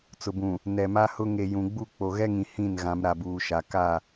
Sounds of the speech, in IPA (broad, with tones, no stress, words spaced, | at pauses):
t͡sʊ˨bũ˨ | nɛ˨ma˦hʊ˦ ŋe˨ jũ˨ɡ͡bu˦˨ k͡po˨ɣɛ˦ŋĩ˨ hĩ˦˨n ɣã˨˦mɾa˨buː˨ʃa˨ ka˦˨